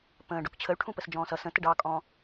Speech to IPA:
pə̃ːɖʊk t͡ɕʰəy̯ʈʰũ pəsd͡ʒɔ̃ːsʌ sə̃ təɖɑkʼɔ̃ː

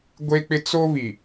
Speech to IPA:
ɡʷe˦k͡pɪ˦ t͡so˦βi˨

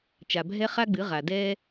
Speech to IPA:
t͡ʃa˨bʱɛ˦ χa˦ɡ͡bɨ˨˦ ʁa˨dɛː˦

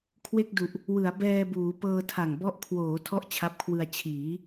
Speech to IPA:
kʰwe˥˩k̚du˨˩ʔ | wɯ˩˦a̯bɛː˧buː˩˦ pɤː˧tʰa˨˩ŋbɔ˦˥ʔ kʰwoː˩˦ tʰɔ˥˩ʔt͡ɕʰa˦˥p̚kʰwɯ˧a̯ t͡ɕʰiː˩˦

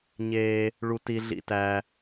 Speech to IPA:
ɲe˩ | ɭu˩ti˩ ɮḭ˩tæ˩

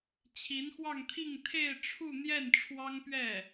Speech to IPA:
t͡ɕʰi˧˥nxwɑ˥˧ŋt̪ʰi˥˧ŋ t̪ʰe˥˧ɪ̯ʈ͡ʂʰu˥˧n̪jɛ˥˩n ʈ͡ʂʰwɑ˥ŋpɥɛ˥˩

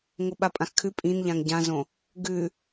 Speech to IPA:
ŋoɓapʼãxkʰʉ pʼĩnʎãŋ ɟãzõ | ɡʉ

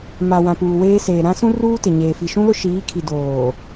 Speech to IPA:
ma˨ wã˨puː˨weː˦seː˨ ɾã˦sũ˦ruː˦ tɪ˨ɲeː˨ fi˨ʃũ˦lʊ˦ ʃiː˨˦kʰi˨doː˨

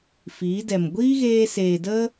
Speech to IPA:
fiː˨˦dɛ˨m ɡʷiː˦ɣeː˧seː˨ də˦

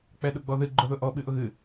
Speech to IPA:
k͡pɛɗʊɡ͡bɔðɨ ɡ͡ǃʊðʊʔɔ ɓɨʔʊɣɨ

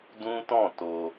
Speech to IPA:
dũ˦tɔ̃˦˨to˧

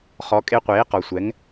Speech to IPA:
χɔ˩˥kʼe˧qʷeː˩˥ qɔ˩sʷɛ˩˥ŋ

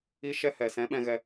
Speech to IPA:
i˧ ʃɛ˧ hɛ˨sɛ̃˨˦ɓɛ̃˧ɣɛ˧

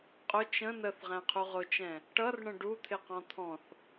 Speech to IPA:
qʼʊ t͡ʃə̃ nəθʁæ̃qʰuʁ ʊt͡ʃɛ̃ | ʈʌrɳə̃ ɖut̪ʰɪqɔ̃ t̪ʰɔ̃θ

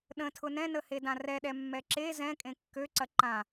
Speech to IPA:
ɗə̃tʰʊ nɛ̃nəhedã rɛɗɛmːɛ ǁe zɛ̃kʼẽ kːøǀɐ ǃã

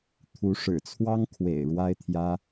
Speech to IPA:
t̪ʰu˧˥ʂɻ̩˨˩t͡sʰwɑ˥ŋ kʰwḛ˨˩ɪ̯ ɻwa˥ɪ̯t̪ʰjä˥

